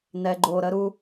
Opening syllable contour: low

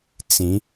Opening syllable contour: rising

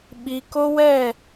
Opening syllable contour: low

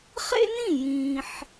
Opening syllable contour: high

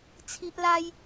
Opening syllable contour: high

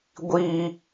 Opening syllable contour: high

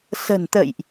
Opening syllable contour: low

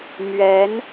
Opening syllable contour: rising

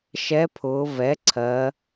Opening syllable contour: rising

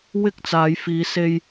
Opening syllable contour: high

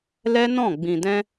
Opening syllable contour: high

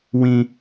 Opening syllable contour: high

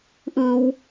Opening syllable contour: low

